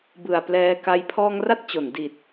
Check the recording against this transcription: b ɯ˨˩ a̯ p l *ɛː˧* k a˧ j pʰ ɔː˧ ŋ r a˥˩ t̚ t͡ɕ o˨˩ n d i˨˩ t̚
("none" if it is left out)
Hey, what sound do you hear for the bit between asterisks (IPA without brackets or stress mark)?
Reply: ɛː˧